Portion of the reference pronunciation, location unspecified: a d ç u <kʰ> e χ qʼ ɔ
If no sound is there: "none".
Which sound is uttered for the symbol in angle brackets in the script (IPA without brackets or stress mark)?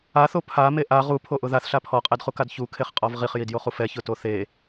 kʰ